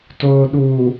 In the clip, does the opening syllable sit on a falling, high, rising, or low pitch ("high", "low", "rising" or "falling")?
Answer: low